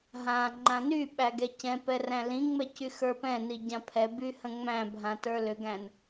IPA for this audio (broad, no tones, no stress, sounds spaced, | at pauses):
ɦ ã ŋ͡ǃ ã n y ɓ æ ɡ ɛ c ɛ̃ p ɛ r æ̃ l ĩ ŋ͡m ɛ c y x ə˞ p ɛ̃ n i ɟ ã pʰ ɛ b y h ə̃ ŋ͡m æ̃ bʱ ã t ə˞ l ʏ ɡ æ̃ n